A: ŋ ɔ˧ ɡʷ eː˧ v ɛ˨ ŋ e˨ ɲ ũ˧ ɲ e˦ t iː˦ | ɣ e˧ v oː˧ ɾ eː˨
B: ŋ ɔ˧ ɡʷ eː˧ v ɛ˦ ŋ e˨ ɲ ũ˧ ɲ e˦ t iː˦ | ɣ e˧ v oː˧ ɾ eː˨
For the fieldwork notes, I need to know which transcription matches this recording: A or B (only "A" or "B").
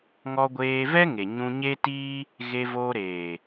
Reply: B